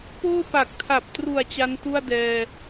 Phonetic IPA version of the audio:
poː˥˩pa˨˩k̚tʰa˨˩p̚tru˨˩a̯ t͡ɕa˦˥ntu˥˩a̯dɛː˧

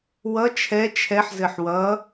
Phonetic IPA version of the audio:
wʌ t͡ʃʰɛ t͡ʃʰɛħzɘħ wʌ

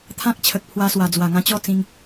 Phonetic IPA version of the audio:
t̪ʰã˦k̚t͡ɕʰə˨k̚pʰwa˧swa˨˩ d͡zwa˨˩ŋã˧t͡ɕɔ˥˧t͡sĩ˧ŋ

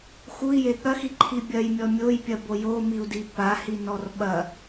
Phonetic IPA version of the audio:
xui̯je ɠɐxiǃʰi bʲɐjmʲɔ mʲojpʲɐbo jomiu̯di pahinɔr ɓɐ

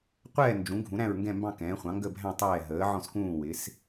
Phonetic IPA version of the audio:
qʷɛː˥˨ nd͡ʒũ˩˥ ɡʱũ˩˥ɾæ̃˥˨ɹŋɡɛ̃˥˨mbɑ̃˥˨ kɛ̃ː˩˥χʷɑ̃˩˥ ŋɡə˥˨bʱæ̃˥˨ tˤɛː˥˨ ɦəː˩˥ʕɔ̃˥˨skũː˥˨ wɪ˩˥s

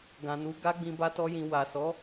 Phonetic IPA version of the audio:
ɡã˨nu˨˦ ɡa˦ɡ͡bĩ˧ ba˦tɔ˦jĩ˧ wa˨sɔ˨˦

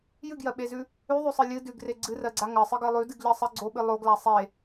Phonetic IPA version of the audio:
jɨɡjɜɓezʉ | ʉðˤʉsˤɨ lʲɨ dʉɡre ɡ͡ǀɨrɜɡ͡ǀa ŋɜsˤɨɡɜ lˠʉdɨɡʎɜsˤɜ ɡ͡ǀoɓɨ lˠoɡla sˤe

